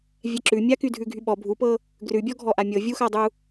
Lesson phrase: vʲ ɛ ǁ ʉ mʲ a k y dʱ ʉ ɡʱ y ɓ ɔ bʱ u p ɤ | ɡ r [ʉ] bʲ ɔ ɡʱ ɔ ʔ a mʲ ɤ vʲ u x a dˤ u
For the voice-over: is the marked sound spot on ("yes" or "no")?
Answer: yes